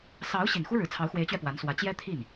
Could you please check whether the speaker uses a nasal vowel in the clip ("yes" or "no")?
no